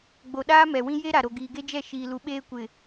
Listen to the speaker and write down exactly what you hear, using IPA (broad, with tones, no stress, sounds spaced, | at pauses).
ɡ͡b o˨ ɗ aː˦ m ɛ˨ w ĩ˦ j e˦ ɾ a˨ ɾ o˨ ɡ iː˨ ɡ e˦ d͡ʒ ɛ˦˨ ʃ iː˦ l u˦ ɓ eː˦ kʷ ɪ˨